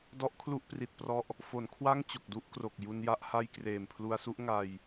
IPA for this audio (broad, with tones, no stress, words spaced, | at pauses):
dɔ˦˥ʔkʰlu˦˥ʔpri˨˩t̚prɔ˦˥ʔ | fo˩˦nkʰwa˥˩ŋ t͡ɕo˨˩k̚du˦˥ʔkro˨˩k̚ ju˧nja˥˩ʔha˥˩j kreː˨˩mpʰlu˧a̯su˦˥ʔ ŋa˧j